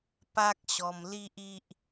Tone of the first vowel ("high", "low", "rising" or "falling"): high